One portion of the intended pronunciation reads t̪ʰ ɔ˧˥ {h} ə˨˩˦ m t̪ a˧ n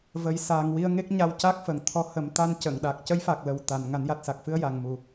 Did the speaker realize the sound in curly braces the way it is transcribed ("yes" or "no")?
yes